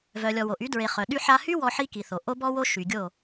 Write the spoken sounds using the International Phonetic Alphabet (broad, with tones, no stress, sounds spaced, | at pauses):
v œ˨ lʲ ɔ˨ w o˨ ʔ y˨˦ d ɹ e˨ χ œ˨ ɗ y˧ ħ a˧ h y˦ w ɔ˦ ħ i˦ k i˨ θ o˨ ʔ o˦ b ɔ˦ w o˦ ʃ y˨ ɡʲ o˦˨